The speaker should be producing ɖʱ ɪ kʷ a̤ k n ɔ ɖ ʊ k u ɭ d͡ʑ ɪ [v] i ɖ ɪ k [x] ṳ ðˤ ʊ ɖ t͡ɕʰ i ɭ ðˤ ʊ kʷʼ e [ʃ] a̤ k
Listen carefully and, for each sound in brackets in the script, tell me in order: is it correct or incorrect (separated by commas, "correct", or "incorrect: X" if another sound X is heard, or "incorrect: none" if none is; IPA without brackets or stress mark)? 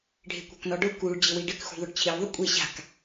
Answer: incorrect: w, correct, incorrect: ɕ